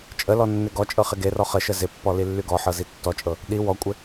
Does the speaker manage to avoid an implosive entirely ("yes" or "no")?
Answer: no